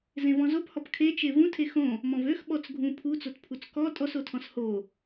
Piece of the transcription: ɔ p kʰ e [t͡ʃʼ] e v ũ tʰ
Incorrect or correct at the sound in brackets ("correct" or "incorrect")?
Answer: incorrect